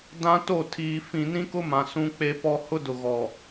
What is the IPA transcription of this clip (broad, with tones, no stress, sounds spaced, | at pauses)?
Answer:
d ã˦ t o˦˨ tʰ iː˨ f ĩ˨ n ĩ˦ k ʊ˦ m ã˨ s ũ˦ k͡p e˦ p ɔ˦ h ʊ˦ d ʊ˨ ɣ ɔ˨